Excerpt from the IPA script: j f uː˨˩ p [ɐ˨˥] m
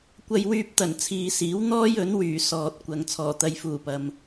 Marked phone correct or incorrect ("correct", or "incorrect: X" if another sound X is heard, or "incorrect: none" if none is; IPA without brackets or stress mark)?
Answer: incorrect: ɐ˨